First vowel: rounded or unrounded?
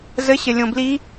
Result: unrounded